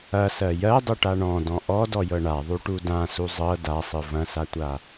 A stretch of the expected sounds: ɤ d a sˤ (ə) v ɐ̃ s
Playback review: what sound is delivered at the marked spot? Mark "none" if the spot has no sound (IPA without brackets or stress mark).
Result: ɯ